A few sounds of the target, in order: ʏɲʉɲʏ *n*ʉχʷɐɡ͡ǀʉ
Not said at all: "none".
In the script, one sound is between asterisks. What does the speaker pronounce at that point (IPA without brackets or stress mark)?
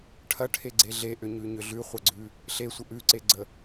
ɮ